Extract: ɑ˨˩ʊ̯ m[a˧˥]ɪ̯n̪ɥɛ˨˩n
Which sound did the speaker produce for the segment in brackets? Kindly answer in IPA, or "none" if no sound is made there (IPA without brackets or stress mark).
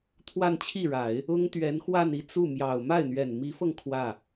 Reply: a˥˩